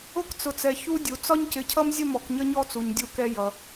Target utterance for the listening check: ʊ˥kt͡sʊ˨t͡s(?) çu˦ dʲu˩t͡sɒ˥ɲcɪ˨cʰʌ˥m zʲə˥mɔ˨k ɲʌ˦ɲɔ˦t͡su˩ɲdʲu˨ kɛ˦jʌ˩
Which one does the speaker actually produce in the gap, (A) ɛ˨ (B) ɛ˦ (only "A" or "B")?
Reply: A